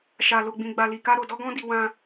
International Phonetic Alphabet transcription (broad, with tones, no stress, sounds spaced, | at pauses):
ʃ a˧ l o˧ ɡ͡b ĩ˧ ɡ͡b a˧ l i˧ k a˦ ɾ o˧ d ɔ˦ ɡ ɔ̃˦ d i˧ w ã˦